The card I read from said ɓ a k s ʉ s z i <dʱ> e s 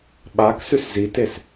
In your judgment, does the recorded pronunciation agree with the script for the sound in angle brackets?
no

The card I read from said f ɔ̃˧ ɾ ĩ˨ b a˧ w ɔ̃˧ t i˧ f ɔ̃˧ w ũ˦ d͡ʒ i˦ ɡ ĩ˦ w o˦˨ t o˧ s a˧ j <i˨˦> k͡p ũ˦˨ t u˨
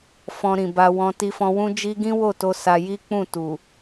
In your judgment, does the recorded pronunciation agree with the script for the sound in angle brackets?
no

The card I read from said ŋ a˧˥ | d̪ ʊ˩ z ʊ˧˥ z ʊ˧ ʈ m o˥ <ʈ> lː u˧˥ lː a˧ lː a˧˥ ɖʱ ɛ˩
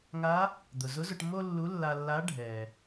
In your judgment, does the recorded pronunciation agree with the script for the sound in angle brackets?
no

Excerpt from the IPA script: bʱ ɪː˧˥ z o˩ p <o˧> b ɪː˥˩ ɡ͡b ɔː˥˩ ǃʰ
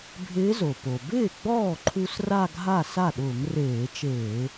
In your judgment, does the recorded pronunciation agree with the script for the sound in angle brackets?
no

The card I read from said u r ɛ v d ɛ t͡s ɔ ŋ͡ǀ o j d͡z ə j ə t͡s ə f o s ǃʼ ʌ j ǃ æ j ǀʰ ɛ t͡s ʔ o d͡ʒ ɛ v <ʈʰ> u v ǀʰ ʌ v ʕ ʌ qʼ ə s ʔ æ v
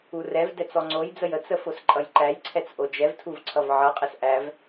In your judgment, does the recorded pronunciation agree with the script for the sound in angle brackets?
no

